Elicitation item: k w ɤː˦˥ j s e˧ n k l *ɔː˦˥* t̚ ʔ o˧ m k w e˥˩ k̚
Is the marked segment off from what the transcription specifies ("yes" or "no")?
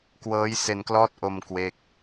no